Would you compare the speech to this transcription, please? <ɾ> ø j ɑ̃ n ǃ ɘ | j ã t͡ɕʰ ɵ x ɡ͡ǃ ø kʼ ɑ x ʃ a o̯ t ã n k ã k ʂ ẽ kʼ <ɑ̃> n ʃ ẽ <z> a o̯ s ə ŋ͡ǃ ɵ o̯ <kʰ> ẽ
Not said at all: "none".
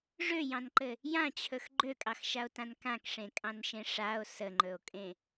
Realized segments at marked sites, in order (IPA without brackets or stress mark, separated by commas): ʐ, ɑ̃, ʂ, kʼ